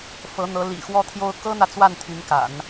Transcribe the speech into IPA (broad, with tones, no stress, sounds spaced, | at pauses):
f ɤ˧˥ n̪ ɤ˧˥ l ḭ˨˩ x w ɔ˥˩ t̪ʰ j o˥ ʊ̯ k ɤ˥ n̪ ä˨ t͡s w a˥˩ n t̪ʰ y˧˥ n k a̰˨˩˦ n